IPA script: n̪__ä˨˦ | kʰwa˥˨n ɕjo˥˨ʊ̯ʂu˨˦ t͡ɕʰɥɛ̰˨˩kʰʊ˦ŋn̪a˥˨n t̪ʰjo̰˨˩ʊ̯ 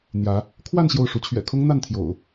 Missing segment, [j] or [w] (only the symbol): j